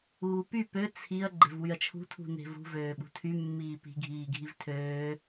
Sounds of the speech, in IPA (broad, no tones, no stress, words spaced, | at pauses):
uːpy pø t͡sʰiɐ̯ ɡ͡ǃe̤vwyɐ̯t͡ʃʰṳ tʰṳne̤vṳ vøːɓṳtʰy mːiːpi̤ ɡʱiːɡʱivtʰøː